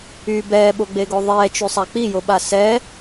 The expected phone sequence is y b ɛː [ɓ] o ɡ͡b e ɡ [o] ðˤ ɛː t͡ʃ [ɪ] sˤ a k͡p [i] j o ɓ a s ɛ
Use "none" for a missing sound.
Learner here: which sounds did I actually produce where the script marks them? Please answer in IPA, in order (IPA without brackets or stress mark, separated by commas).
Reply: ɓ, o, y, i